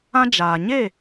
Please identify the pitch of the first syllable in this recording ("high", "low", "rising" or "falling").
high